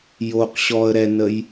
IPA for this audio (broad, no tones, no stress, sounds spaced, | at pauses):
j o q ɕ ɔ ə̯ ɾ ɛ n ə j